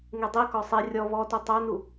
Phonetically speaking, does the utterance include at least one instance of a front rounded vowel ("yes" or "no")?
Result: yes